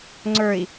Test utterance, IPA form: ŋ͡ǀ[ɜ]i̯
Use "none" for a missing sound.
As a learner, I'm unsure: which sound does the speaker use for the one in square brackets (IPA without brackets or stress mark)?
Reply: ə˞